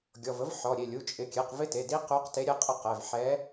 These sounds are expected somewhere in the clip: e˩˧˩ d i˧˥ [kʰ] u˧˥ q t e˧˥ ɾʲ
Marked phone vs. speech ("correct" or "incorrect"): incorrect